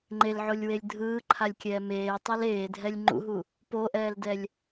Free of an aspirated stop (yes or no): no